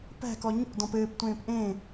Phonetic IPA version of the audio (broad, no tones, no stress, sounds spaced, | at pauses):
p æ̤ k ɔ ɲ o̰ d ɔ̃ p ɘː p tʷ ẽː p ʔ ẽ